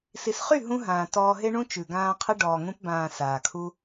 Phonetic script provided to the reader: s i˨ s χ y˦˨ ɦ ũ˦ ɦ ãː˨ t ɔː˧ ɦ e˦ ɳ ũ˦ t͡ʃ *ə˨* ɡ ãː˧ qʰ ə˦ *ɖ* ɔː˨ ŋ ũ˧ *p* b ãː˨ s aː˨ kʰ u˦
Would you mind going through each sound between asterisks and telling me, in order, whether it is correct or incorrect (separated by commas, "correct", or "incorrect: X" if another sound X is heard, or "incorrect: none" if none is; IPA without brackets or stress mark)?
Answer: incorrect: ʉ˨, correct, correct